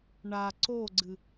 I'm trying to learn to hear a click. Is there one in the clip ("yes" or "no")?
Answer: yes